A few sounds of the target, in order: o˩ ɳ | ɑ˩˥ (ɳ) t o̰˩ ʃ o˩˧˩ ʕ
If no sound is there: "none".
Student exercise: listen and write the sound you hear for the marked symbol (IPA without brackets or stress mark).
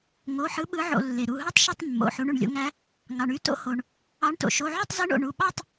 ɳ